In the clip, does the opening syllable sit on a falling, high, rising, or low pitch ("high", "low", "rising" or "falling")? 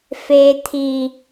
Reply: low